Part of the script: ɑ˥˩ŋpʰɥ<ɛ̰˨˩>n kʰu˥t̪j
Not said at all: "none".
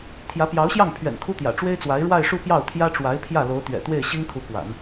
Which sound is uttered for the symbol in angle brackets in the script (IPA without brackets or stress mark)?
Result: ɛ̰˨˩